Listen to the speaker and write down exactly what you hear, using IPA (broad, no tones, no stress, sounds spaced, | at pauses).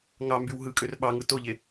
ŋ ɑ m b y w ɦ ɯ kʼ ø r ɓ ɑ ŋ ɯ t o ʎ e